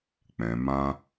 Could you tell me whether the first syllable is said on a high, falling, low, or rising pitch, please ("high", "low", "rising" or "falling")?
low